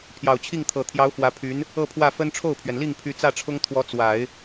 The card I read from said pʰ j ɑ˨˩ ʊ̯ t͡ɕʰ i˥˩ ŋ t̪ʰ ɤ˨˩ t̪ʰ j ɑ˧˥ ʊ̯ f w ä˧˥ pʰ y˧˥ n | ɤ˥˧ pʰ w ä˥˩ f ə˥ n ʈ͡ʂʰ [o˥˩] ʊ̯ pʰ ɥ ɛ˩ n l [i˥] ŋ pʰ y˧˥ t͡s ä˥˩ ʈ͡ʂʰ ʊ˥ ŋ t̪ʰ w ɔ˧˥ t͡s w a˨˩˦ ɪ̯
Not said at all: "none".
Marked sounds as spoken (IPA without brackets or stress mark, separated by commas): o˥˩, i˥˩